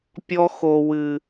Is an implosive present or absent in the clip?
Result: absent